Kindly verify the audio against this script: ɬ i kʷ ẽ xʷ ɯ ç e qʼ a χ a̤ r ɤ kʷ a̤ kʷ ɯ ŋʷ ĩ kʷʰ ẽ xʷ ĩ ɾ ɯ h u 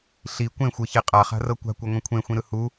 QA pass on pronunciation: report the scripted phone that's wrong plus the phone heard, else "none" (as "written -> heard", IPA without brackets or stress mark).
none